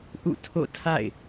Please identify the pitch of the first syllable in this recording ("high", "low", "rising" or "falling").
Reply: falling